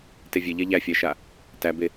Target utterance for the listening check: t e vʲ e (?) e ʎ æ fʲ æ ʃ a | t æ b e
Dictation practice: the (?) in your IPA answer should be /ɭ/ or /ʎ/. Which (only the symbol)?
ʎ